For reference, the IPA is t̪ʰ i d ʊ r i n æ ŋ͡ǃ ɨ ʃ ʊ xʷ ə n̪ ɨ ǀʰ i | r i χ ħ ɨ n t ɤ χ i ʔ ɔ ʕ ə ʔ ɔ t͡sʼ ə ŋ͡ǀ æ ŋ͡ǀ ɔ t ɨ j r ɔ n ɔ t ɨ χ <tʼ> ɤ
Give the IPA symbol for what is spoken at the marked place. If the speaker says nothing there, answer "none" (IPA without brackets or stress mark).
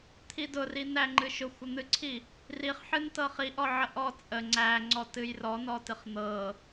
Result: n̪